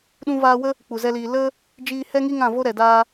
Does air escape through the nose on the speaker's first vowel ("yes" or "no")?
yes